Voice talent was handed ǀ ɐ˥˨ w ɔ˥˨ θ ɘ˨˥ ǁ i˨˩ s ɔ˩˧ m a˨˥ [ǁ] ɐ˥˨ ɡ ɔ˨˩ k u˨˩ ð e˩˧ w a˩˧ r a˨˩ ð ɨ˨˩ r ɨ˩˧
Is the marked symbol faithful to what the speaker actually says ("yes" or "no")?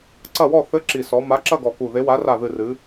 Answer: yes